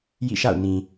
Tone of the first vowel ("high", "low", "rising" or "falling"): falling